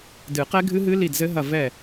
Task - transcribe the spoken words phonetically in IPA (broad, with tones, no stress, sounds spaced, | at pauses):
d ɨ˨˩˦ q ɛ˦˥ ɡʱ ɨ˦˥ ɦ ɨ˦˥ l i˦˨ d z ɘ˦˥ ɦ ɐ˦˨ v ɛ˦˨